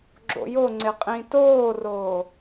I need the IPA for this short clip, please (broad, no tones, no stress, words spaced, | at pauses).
ɡ͡ǁo̰joŋ͡ǀɪ qʼĩtoːroː